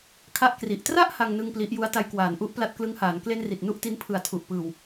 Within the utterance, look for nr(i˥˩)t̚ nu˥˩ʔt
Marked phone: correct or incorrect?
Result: incorrect